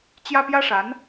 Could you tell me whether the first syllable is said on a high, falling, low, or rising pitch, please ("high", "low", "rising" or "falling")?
high